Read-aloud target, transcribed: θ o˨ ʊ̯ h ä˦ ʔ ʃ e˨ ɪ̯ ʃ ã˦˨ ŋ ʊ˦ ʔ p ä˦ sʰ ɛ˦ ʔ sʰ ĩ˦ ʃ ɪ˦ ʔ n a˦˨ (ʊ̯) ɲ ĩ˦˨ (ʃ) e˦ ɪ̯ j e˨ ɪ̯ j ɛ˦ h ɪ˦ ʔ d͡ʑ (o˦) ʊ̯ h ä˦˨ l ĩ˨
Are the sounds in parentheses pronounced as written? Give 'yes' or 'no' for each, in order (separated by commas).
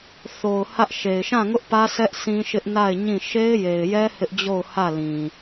no, yes, no